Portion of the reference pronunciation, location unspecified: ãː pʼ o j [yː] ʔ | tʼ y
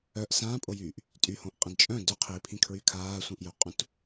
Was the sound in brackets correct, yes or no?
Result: yes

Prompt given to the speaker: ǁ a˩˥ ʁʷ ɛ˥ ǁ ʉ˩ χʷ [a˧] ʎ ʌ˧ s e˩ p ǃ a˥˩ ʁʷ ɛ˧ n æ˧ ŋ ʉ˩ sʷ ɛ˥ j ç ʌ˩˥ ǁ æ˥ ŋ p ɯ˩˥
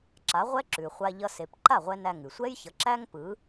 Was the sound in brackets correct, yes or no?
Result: yes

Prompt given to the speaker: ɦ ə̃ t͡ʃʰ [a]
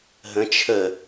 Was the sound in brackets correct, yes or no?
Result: no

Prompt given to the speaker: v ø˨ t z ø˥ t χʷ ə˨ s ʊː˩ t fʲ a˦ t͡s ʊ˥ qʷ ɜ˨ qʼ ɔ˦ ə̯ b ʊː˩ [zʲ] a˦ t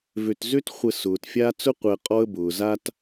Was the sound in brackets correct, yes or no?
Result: no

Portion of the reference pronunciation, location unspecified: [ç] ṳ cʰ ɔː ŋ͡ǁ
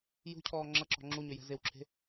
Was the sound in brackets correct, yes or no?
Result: no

